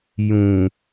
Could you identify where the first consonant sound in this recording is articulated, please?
palatal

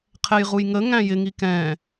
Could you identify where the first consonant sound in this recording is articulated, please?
uvular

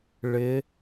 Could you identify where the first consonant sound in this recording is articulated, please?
retroflex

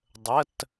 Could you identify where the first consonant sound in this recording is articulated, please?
alveolar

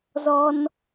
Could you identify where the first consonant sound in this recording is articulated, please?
alveolar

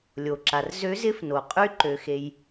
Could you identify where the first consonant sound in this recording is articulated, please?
alveolar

